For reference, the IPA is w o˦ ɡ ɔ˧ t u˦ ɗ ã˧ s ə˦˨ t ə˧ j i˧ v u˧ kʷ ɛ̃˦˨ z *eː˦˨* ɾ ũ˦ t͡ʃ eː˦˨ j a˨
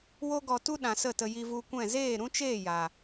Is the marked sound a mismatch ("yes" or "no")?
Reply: no